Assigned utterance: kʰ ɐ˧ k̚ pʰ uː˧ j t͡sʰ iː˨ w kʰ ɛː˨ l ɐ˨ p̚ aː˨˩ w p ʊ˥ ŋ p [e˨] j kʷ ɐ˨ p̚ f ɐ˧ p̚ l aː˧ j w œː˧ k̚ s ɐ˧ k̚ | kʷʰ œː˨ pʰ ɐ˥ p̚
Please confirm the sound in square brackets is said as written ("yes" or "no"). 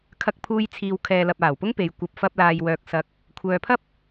yes